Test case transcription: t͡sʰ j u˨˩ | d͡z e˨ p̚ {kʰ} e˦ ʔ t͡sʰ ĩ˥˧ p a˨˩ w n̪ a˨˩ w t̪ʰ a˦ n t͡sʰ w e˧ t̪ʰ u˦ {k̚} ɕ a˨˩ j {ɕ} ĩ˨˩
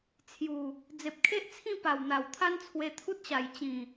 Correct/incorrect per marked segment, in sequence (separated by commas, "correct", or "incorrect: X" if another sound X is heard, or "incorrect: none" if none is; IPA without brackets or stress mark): correct, incorrect: t̚, incorrect: t͡ɕ